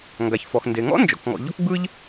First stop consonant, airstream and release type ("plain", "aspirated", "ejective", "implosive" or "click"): plain